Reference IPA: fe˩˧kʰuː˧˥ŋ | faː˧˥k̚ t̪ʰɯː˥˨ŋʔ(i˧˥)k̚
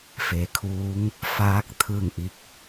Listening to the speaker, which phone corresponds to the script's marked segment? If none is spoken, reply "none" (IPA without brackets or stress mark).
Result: i˧˥